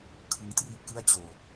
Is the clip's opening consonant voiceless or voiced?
voiceless